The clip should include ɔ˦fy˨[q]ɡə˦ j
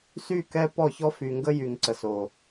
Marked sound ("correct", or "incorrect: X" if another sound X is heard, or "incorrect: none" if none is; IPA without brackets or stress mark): incorrect: ŋ